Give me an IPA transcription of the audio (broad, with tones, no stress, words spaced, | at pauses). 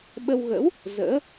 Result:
ɓə˧wɣə̰˧˥w | zə̰ː˧˥